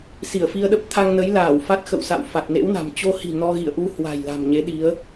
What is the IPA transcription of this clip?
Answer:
s i˧˩ ə̯ f i˧ ə̯ ɗ ə˦˥ p̚ t̪ʰ a˧ ŋ n ə˨˦ j l aː˧˩ w f a˦˥ t̚ x ə̰˧˨ w s a̰˧˨ w f a˨˩ t̚ n ḛ˧˥ w n a̤˨˩ m t͡ɕ o˧ h i̤˨˩ n ɔ˧ ɣ ḭ˧˨ ə̯ ʔ u˧ h w a̤˨˩ j l a̤˨˩ m ɲ e˨˦ ɗ i˨˦ ə̯

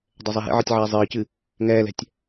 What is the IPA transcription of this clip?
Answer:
dˤ ɛ zˤ ɛ ɦ ḛ ʕ ɨ tʲ ʕ ɛː zˤ ɨː c ɨ | ŋ ɛː l ɛ̤ tʲ

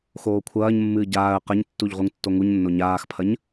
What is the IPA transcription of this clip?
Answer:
x oː kʷʰ ɐː ɲ mː ɨː ɟ aː ə̯ q ɐ ɲ tː u ʎ ʁ u ŋ tː o ŋ u ɲ nː o ɲ aː x pʰ ɐ ɲ

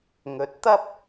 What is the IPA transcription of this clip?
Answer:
ŋ ɵ˨˥ t̚ t̪ ɐ˥ p̚

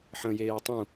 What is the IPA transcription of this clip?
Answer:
ħ ə̃ j eː tˤ ũ

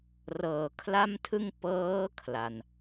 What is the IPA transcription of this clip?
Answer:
r ɤː˩˦ kʰ l a˥˩ m tʰ ɯ˥˩ ŋ p ɤː˦˥ kʰ l a˧ n

